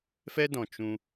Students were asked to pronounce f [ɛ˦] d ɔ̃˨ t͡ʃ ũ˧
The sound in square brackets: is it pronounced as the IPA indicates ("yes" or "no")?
yes